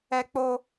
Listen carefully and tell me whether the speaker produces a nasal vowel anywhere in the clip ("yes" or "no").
no